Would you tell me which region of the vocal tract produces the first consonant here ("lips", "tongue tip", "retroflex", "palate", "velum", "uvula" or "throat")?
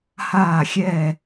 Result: throat